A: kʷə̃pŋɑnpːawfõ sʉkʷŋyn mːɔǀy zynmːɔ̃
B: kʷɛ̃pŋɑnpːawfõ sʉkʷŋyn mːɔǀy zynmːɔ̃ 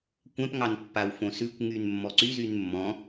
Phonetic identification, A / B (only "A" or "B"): B